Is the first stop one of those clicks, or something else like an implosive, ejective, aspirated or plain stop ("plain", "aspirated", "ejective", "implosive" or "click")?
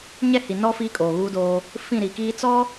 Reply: ejective